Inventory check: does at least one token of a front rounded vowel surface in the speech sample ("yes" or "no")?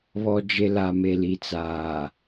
no